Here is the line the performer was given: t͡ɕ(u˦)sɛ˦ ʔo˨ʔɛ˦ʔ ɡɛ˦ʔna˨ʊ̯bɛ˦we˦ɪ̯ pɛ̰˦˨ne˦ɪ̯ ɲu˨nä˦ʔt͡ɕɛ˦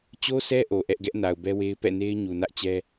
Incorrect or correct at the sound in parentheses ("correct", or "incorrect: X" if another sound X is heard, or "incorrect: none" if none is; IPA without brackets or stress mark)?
incorrect: o˦